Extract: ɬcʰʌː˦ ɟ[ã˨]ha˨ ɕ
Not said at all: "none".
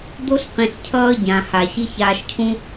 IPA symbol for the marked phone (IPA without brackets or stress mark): ã˨